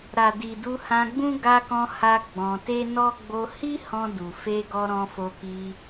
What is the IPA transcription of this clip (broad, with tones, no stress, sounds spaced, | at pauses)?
ɾ a˨ d i˨ d u˧ h ã˧ ɡ͡b ũ˦ ɡ a˧ k ɔ̃˧ h a˧ ɡ͡b ɔ̃˧ t e˦ n ɔ˦ ɡ͡b o˧ h i˦ h ɔ̃˧ d u˨ f e˧ ɡ ɔ˧ ɾ ɔ̃˧ f o˧ k i˧